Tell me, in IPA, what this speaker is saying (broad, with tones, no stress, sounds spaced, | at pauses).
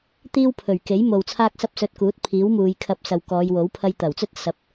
t̪ iː˥ w pʰ ɵ˨˩ ɥ k e˨˥ j m o˨ w t͡sʰ aː˥ k̚ s ɐ˥ p̚ s ɵ˧ t̚ k uː˨˥ t̚ pʰ iː˨˥ w m uː˨˧ j kʰ ɐ˧ p̚ s ɐ˨ w k ɔː˨˧ j w o˨˥ w pʰ ɐ˧ j t̪ ɐ˨˩ w t͡s ɵ˥ t̚ s ɐ˨˥ p̚